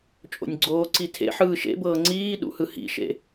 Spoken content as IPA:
t͡ʃʼ o̰ nʲ ɡ͡ǀ oː ǀ i tʰ ḛ ħ ɯː ʃ ḛ b ɤː ŋ͡ǀ iː ɗ ṵ h ɯ h ḭ ʃ ḛ

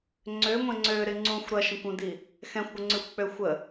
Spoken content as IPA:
ŋ͡ǀ ø ŋʷ ɛ̃ ŋ͡ǀ ø ɾ ɪ ŋ͡ǀ ũ xʷ ɾ ɐ ʃ ə̃ kʷ ũ d i | x ɛ̃ xʷ ɡʷ ɪ ŋ͡ǀ y xʷ k͡p ø xʷ ə

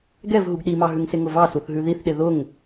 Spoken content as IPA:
ɡ ɛ v ɦ u ɡ ɗ i m ɑ ɦ ʉ ŋ s ɪ ŋ ʊ v ɑ s u θ ɦ ʉ ð i θ ɗ ɪ ð ʊ ŋ

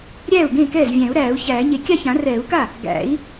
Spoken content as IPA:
ɾʲ æː˥˩ u̯ ɡ ẽ˥˩ k ɛː˥˩ z vʲ æ̃˨˩˦ u̯ ɾ æː˨˩˦ u̯ ç æː˨˩˦ ɲ e˨ kʲ a˥˩ ç ã˨˩˦ r ɛː˨˩˦ u̯ k a˥˩ | ɡ æ̰˨˩˦ i̯

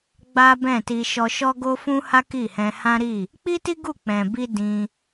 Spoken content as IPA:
ɡ͡b a˦ b ɛ̃˦˨ t i˧ ʃ ɔ˧ ʃ ɔ˦ ɡ o˦ f ũ˦ h a˦ k i˦˨ h ɛ̃˧ h ã˦ ɾ i˦˨ | k͡p i˦ t i˦ ɡ u˦˨ k͡p ɛ̃˨ b i˧ d ĩ˧

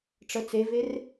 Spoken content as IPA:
ʈ͡ʂ ə t͡s e v e r

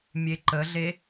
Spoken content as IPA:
mʲ e ǃ ə ɮ e

